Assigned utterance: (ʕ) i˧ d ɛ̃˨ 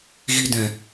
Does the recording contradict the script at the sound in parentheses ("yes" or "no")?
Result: yes